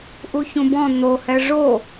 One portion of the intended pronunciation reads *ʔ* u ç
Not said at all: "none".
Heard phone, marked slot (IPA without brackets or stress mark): ʔ